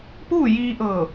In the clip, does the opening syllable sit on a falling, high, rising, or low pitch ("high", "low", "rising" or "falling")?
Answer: falling